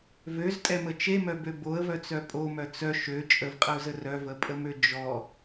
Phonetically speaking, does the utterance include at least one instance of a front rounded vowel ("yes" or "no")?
yes